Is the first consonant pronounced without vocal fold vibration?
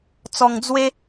yes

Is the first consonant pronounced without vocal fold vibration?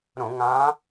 no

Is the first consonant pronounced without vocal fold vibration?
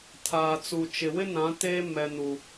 yes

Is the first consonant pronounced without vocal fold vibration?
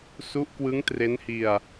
yes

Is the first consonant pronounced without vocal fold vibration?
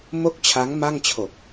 no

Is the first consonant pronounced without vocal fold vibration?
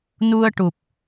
no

